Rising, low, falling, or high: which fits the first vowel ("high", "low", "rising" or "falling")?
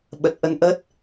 low